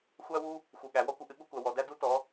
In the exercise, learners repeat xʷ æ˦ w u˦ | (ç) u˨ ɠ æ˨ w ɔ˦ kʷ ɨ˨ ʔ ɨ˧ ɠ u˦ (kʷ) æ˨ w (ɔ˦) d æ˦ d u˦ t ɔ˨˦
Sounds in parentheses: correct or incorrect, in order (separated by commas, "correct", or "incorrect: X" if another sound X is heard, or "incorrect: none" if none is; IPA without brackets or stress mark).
incorrect: x, correct, incorrect: ɔ˨